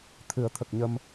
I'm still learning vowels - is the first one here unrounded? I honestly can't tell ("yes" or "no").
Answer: yes